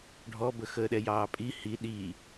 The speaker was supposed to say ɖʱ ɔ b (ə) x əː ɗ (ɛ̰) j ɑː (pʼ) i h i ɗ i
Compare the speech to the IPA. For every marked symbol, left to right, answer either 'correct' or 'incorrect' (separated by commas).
correct, incorrect, correct